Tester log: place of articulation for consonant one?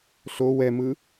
alveolar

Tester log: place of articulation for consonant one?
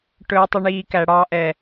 retroflex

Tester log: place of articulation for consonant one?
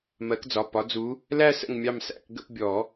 labial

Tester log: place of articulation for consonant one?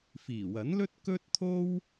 labial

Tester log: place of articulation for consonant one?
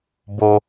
labial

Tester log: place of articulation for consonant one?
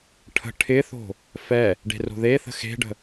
retroflex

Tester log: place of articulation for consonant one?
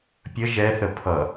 labial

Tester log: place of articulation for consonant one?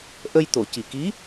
glottal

